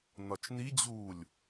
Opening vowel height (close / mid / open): open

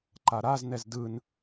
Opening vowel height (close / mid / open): open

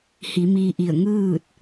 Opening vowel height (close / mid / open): close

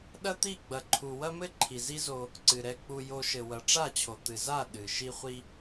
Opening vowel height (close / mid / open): open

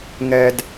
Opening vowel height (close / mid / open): mid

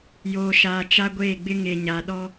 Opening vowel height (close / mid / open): mid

